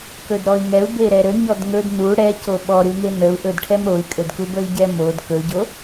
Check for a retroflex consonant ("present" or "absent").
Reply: present